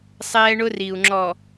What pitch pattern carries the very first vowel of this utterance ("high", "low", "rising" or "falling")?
high